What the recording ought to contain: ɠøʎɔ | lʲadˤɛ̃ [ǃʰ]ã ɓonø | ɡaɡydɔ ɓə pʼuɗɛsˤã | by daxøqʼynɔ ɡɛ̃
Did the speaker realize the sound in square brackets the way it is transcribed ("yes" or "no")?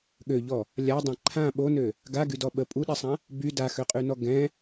yes